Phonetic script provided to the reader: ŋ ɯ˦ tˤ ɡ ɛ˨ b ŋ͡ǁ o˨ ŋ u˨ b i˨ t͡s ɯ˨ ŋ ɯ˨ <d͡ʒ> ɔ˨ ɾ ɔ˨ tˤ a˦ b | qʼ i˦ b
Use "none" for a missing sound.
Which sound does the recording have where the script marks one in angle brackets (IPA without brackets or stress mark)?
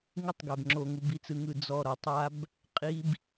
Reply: d͡z